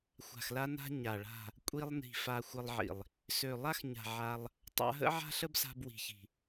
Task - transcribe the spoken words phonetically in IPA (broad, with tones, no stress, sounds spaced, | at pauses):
xʷ a̤˨ x l a˧ n a̤˧ ɲ a˨ ɭ a̤˦˨ | kʷʼ i˧ lˠ n i̤˨ f a˧ xʷ ə˧ lˠ ʕ ḭ˨ lˠ | s ø˨ lˠ a˦ x ɲ a̤˨ ʕ a˧ lˠ | tˤ a̰˧ ɦ ə̰˦ ʕ a̤˦ ɬ ə˦ b s a̤˧ b w i̤˨ ç i̤˨